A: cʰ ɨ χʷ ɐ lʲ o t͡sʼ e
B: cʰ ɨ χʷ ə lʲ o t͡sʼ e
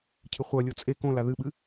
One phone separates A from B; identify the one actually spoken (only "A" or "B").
A